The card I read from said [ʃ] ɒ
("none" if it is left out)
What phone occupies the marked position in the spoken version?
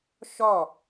ʃ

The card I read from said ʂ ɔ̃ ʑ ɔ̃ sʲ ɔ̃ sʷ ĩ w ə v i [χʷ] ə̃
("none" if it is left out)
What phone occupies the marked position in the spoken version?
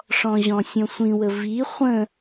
χʷ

